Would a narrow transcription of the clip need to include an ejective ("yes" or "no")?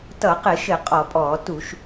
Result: yes